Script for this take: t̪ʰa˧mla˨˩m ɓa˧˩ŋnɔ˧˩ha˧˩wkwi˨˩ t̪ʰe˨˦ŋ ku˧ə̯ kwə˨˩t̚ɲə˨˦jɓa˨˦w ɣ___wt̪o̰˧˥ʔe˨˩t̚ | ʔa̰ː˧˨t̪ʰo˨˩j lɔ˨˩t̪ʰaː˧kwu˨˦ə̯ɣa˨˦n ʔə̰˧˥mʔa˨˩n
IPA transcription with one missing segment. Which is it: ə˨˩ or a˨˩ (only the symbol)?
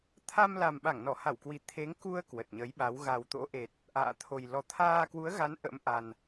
a˨˩